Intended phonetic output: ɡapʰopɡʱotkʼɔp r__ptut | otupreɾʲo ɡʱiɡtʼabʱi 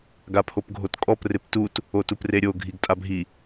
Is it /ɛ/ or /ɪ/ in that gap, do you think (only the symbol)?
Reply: ɪ